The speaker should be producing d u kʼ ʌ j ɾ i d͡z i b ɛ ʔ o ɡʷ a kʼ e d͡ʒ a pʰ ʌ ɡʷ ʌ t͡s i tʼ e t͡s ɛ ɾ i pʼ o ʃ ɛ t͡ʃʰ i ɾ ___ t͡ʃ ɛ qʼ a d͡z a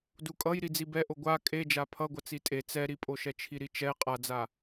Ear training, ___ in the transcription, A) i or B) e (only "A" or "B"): A